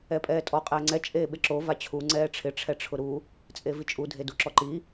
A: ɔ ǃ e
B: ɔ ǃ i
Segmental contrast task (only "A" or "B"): B